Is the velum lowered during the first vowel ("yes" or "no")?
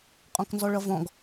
yes